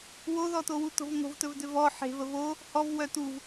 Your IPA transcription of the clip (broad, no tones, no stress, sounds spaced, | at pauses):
w o ð ɔ t o w u t o̤ v ŋ o̤ v t ɵ v d ʏ v ɔ ħ e̤ v ə v o | h ɔ v w œ t u v